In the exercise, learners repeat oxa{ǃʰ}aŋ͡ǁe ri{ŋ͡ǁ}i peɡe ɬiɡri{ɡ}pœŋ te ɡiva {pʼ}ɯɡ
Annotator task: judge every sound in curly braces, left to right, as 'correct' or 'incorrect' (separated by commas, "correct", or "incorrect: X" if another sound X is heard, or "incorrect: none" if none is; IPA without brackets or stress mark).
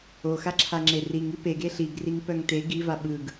incorrect: ǁʰ, incorrect: ŋ, incorrect: ŋ, incorrect: ɓ